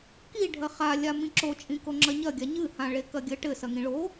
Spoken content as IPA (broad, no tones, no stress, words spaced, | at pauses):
kiɖʱɐ χalʲa mĩǁot͡ʃʼĩ koŋ͡ǁɐɲɐ ɡʲaɲɨhã ɭekɐɡʲɘ ʈɘsɐŋĩ ɭo